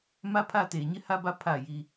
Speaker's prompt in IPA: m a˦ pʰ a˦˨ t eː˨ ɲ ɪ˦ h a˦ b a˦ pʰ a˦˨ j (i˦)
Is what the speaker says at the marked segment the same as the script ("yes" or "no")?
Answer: yes